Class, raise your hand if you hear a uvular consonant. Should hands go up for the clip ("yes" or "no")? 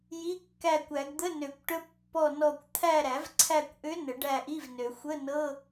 no